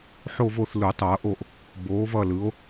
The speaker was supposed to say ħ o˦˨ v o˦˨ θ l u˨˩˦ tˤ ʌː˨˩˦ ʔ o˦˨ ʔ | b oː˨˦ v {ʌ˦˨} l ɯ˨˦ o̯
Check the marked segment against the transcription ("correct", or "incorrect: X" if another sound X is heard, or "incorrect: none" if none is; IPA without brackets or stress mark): correct